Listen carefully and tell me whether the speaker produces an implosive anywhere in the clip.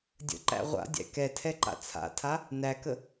no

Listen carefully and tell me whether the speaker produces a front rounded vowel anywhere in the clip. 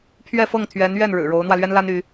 yes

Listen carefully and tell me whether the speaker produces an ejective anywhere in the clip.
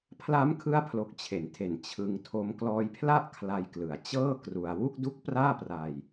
no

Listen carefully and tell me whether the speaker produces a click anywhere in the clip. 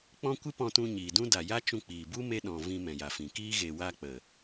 no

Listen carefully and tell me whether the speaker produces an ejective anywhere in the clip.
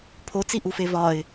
no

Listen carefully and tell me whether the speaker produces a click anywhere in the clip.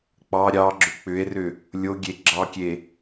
yes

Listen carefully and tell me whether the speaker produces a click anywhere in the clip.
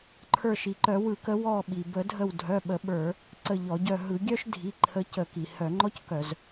yes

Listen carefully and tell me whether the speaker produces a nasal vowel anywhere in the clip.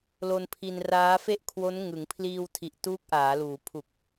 no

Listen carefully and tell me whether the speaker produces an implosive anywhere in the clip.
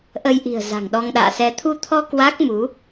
yes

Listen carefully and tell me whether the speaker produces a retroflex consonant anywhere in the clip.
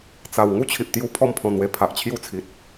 no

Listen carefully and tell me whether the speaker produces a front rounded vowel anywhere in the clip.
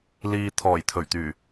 yes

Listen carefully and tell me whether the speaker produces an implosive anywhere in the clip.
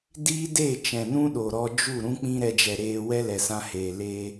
yes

